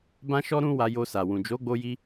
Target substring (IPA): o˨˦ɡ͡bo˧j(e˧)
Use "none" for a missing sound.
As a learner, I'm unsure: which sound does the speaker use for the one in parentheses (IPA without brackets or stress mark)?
i˧